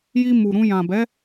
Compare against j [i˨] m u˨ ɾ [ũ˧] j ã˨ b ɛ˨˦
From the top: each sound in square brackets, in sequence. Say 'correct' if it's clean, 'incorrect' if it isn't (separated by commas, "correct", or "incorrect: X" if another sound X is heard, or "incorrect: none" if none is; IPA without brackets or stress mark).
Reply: incorrect: i˧, correct